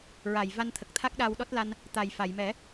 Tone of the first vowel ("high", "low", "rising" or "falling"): low